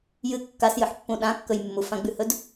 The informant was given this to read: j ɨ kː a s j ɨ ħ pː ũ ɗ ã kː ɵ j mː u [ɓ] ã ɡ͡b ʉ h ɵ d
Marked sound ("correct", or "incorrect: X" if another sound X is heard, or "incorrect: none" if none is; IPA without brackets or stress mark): incorrect: f